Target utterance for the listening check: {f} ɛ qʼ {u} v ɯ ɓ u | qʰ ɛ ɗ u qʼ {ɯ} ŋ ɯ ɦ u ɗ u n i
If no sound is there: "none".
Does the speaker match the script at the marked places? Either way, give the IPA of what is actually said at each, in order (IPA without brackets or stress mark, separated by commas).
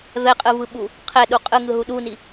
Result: v, ɯ, ɯ